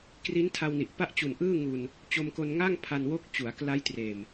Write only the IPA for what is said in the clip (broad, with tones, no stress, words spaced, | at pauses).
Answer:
kri˦˥ntʰa˧wni˨˩ʔ pa˥˩ʔt͡ɕu˨˩nʔɯː˥˩ ŋu˧n | t͡ɕo˧mko˧nŋa˥˩ŋ pʰa˧nwo˦˥k̚t͡ɕu˩˦a̯ kla˦˥jtreː˨˩m